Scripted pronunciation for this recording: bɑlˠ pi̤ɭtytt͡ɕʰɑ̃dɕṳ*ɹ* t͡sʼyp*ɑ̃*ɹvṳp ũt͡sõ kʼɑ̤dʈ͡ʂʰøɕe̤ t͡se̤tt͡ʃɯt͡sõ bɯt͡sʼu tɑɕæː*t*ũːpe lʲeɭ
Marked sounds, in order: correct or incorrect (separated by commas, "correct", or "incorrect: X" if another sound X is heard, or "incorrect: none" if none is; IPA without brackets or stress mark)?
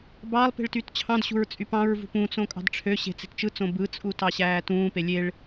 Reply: correct, correct, correct